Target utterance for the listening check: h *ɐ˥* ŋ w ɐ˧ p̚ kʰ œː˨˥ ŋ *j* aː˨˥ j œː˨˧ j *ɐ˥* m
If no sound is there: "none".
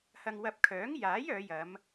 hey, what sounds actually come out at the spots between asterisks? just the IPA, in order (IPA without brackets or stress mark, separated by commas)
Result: ɐ˧, j, ɐ˨˧